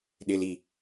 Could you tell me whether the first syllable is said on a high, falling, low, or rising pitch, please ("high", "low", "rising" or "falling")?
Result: high